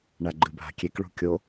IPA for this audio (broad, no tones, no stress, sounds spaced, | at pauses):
ɳ a ɡ͡ǃ ɨ bʱ a̤ kʲ e k ɭ ṳ kʲ o